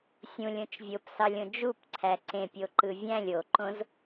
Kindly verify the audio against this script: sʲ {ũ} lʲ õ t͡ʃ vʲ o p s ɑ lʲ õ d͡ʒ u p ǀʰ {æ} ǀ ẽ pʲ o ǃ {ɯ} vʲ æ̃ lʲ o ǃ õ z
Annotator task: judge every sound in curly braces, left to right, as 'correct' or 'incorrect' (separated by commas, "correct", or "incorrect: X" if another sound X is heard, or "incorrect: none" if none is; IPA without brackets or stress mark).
correct, correct, correct